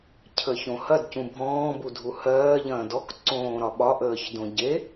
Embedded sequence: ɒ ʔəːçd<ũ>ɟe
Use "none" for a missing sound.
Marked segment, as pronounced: õ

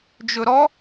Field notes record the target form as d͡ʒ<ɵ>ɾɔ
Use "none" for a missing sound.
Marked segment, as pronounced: ɵ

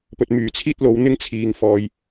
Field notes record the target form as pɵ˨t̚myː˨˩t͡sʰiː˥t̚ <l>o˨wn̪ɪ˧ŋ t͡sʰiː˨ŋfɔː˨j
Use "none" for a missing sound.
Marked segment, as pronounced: l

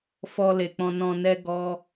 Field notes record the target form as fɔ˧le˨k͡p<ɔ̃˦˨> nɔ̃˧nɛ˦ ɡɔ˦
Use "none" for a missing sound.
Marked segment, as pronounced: ɔ̃˧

